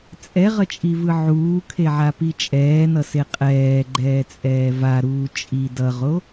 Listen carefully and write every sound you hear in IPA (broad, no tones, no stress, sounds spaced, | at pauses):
t͡sʼ ɛ ʁ ʌ t͡ʃʼ i v ɯ ʕ uː kʰ e ʕ a p i t͡ʃʼ ɛː n ʌ s e qʼ ɛː ɡ͡ǃ ɛː t͡sʼ ɛː v a ɾ uː t͡ʃʼ i d ʌ ʁ o